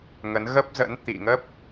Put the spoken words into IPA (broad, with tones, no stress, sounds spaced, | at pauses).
ŋ ə˨˦ n ɣ ə˦˥ p̚ z ə̰˧˥ n t̪ ḭ˧˨ ŋ ə˦˥ p̚